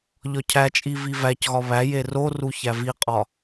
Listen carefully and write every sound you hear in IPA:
ʎ ɒ cʰ æ t͡ʃʼ i v i v æ c ɣ ɒ β æ j e r o r u ç æ v i qʼ ɒ

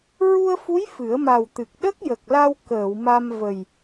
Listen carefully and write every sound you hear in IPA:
ɹ u˧ ə̯ f u˧˥ j f ɨ˨˩˦ ə̯ m a˨˩ w t̪ ɨ˨˩ k̚ ɗ ə˦˥ k̚ j ə˨˩ k̚ l a˧ w k əː˨˩˨ w m a˧ m v ə˨˩ j

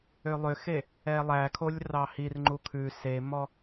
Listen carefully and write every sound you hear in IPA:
ø lˠ ø x e | ɛ lˠ æ kʰ o lʲ r ɑ h i r ŋ͡ǃ u kʰ ʉ s e m ɔ

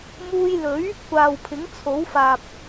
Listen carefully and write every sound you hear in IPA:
m uː˧ j l ɵ˨˥ ɥ | kʷ aː˨ w pʰ ɪ˨˥ ŋ t͡sʰ o˨˥ w f aː˨ p̚

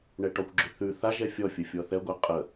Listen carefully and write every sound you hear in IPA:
ɳ ɛ ʈ ɔ kʷ ɡ͡ǁ ʉ θ ʉ θ a ʒ ɛ fʲ ɔ fʲ ə fʲ ɔ θ ɛ ɡʷ ɛ qʼ ə

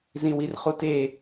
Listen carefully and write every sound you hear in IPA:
z ĩ w i r χ u t e

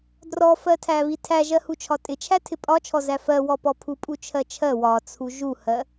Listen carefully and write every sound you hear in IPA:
d r ɔ f ɜ tʰ æ β i tʰ æ ʒ ɜ h u t͡ʃʰ ɒ tʼ ɪ t͡ʃʰ æ tʰ ɪ pʼ ɒ t͡ʃʰ ɔ z æ f ɜ w ɔ p ɔ pʰ u pʼ u t͡ʃʰ ɜ t͡ʃʰ ɜ w ɒ t͡sʰ u ʒ u h ɜ

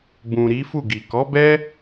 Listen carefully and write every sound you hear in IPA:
b ũ˨ ɾ i˨˦ f u˦˨ ɡ i˨ k ɔ˨˦ b ɛ˦

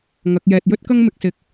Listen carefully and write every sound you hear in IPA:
ŋ ɐ˨˥ k̚ j ɛː˨ t̚ j ɵ˥ t̚ k ɐ˥ ŋ m ɪ˨˥ k̚ s ɪ˨˥ k̚

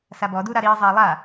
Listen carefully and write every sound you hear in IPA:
s a b ɔ d u ɾ a ɾ iː zˤ eː lˠ a

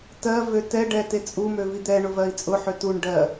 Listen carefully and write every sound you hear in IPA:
t ɜ v ø t ɛ ɖ ɛ t e t͡sʼ u m ø v i d̪ ɛ ɳ ʊ v ɜ i̯ t͡sʼ ʊ ħ ø t u ɳ ɖ ɜ

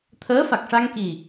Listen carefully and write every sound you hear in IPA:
t̪ʰ əː˧˥ f a˨˩ k̚ ʂ a˧ ŋ k i˨˩

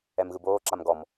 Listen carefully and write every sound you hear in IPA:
ɛ m ɣ ɯ b oː ǁ a m ɡ ɔ m

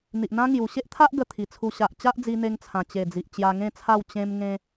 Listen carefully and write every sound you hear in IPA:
n̪ i˨ ʔ n̪ ã˦ ŋ j u˨˩ ɕ e˦ ʔ t̪ʰ a˦ ʔ ɡ ə˧ t̪ʰ i˨˩ t͡sʰ u˧ ɕ a˨ ʔ t͡ɕ a˦ ʔ d͡z i˧ n̪ e˧ ŋ t͡sʰ ã˨˩ t͡ɕ e˨˩ d͡z i˨ ʔ t͡ɕ j a˧ ŋ ẽ˥˧ t͡sʰ a˥˧ w t͡ɕ ẽ˧ m ŋ ẽ˧

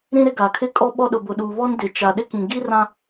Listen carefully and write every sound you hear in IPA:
ɾ ĩ˦ ɾ ɪ˦ ɡ a˨ kʰ ɪ˦ kʼ ɔ˦ ɓ ɔ˦ ɗ ʊ˨ b ʊ˨ ɗ uː˨ β ɔ˦ n d ɪ˨ t͡ʃ a˨ ɗ ɪ˦ k ĩ˨ ɡ i˦ r ã˦

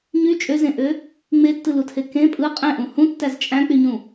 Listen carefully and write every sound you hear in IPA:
ɲ y t͡ʃʼ ø z ẽ ʔ ø | ŋ͡m e tː ɯ l u tʰ e k ẽ pʼ ɯ qʼ ẽ ʔ ũ h ũ tː æ z t͡ʃʼ æ̃ k͡p y ɲ ũ

